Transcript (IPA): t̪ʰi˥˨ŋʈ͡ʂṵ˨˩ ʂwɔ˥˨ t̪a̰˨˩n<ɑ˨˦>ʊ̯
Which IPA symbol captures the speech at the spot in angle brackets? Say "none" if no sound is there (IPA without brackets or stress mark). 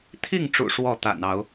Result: ɑ˨˦